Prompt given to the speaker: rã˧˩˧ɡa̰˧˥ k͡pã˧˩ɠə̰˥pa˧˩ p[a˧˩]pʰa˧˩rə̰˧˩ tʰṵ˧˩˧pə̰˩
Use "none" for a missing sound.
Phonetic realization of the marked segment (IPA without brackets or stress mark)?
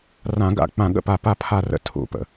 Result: a˧˩